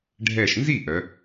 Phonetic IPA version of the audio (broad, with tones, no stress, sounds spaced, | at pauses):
ɖʱ ɛ˧˩ ʃ n z i˥˩ ʔ œ˨˦